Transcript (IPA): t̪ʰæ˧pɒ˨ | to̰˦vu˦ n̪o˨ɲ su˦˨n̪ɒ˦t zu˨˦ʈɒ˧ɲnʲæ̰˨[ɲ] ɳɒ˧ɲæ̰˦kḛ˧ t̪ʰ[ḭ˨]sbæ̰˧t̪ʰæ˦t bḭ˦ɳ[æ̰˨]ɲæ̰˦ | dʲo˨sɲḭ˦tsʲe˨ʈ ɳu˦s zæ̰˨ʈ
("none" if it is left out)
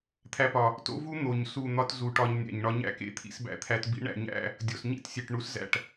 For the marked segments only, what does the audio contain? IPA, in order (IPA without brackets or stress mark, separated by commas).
ɲ, ḭ˦, æ̰˨